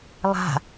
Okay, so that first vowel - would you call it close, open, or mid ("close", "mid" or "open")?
open